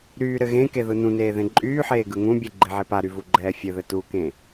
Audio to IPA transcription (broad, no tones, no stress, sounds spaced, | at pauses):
ɾ yː ɾ ɘ ɣ ẽ k e ð ɯ n ũ n eː ð ẽ ǃʼ yː ħ eː ɡ ɯ ŋ ũ bʲ ɯ ɡ͡ǃ e ʕ e p a ɾ y v u ɡ͡ǃ ɛː fʲ ɘ ð ɘ t u k ẽ